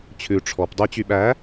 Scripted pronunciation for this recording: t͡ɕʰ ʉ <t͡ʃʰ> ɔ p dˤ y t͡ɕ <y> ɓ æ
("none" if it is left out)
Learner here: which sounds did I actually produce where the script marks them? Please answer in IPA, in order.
ʈ͡ʂʰ, y

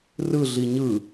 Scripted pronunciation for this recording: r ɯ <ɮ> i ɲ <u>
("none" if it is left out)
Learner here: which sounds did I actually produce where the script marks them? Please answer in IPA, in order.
ɮ, ɯ

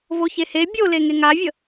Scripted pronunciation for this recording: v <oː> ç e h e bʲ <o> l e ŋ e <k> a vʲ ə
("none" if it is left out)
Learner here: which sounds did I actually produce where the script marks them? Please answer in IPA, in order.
o, o, ŋ

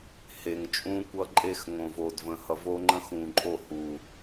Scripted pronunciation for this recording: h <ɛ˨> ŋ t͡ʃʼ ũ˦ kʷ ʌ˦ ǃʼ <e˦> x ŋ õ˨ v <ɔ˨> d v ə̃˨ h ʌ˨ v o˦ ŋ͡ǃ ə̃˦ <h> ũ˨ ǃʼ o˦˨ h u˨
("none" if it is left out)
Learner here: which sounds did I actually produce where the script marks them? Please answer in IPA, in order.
e˨, e˦, o˨, x

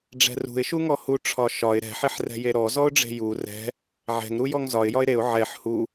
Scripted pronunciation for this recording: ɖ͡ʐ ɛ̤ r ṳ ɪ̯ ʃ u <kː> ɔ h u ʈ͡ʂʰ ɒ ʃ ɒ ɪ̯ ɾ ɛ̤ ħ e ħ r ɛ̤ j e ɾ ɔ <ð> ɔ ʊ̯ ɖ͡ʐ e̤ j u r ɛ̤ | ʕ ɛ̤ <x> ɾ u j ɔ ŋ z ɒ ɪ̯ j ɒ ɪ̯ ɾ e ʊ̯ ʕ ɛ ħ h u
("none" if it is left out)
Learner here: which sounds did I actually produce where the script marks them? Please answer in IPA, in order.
ŋ, z, ŋ

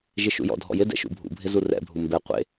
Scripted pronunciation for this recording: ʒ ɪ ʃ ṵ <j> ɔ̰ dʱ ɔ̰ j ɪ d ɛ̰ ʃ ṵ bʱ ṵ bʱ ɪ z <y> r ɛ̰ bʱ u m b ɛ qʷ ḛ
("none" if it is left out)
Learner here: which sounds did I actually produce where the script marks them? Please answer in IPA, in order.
j, u

